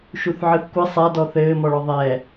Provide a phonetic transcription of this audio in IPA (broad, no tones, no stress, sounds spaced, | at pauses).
ʃ u θ ʕ ɨ θ kʷ ɘ sˤ a d ɔ θ ɘː m ɔ ɭ ɔ ðˤ ɛ